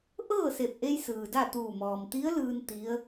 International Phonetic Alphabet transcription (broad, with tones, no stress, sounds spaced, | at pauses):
ʔ ɤː˥˨ s e˧˩ p̚ ʔ e˧ j s ɯː˩ d a˥˨ t̪ uː˧˩ m ɔː˩ m t̪ i˧˥ ə̯ l ɯː˧ n t̪ i˧˥ ə̯